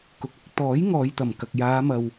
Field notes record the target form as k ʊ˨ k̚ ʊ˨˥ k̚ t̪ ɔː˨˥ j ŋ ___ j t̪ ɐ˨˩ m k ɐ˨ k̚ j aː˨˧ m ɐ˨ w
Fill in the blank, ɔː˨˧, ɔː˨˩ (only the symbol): ɔː˨˧